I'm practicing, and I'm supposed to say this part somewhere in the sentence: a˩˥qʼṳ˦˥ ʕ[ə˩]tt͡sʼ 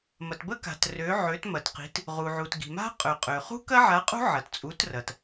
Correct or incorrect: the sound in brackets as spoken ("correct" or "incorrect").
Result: incorrect